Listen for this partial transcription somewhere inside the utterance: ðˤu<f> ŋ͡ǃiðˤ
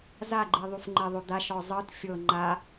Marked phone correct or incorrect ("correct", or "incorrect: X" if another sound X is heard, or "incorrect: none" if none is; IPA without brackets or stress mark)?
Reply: correct